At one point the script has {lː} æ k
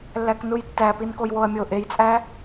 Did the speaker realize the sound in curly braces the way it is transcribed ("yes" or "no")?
yes